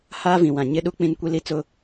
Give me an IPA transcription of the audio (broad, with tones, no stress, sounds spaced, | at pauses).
h aː˦ v ĩ˨ w ã˨ ɲ ɪ˦ ɗ u˦ k͡p ĩ˦ n kʷ i˦ l i˦ t͡s ʊ˦